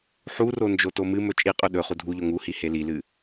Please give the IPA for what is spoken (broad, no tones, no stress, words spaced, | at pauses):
ħuro nd͡ʒotomɨmɵ t͡ʃʼiqʼɵ ɗɵχu dʱuʎo ŋuhi helilɨ